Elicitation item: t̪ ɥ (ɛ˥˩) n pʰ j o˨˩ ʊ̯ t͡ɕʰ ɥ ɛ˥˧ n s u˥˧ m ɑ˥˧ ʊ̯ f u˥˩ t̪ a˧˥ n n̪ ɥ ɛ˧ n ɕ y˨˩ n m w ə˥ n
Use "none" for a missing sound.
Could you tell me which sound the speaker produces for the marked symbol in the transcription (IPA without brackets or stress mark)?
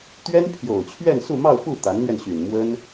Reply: ɛ˥